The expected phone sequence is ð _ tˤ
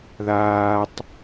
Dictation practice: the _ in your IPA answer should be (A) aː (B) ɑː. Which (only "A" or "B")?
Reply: A